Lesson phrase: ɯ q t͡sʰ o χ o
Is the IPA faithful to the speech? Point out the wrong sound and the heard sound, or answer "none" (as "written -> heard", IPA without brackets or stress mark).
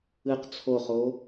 none